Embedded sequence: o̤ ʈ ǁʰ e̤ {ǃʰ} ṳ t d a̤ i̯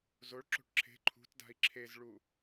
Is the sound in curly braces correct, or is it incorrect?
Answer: correct